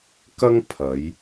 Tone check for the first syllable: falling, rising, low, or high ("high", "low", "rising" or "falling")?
high